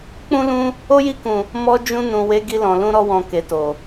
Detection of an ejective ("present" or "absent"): absent